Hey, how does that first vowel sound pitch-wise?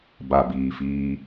low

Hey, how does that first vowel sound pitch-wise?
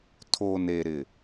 low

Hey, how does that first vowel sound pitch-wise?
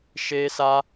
high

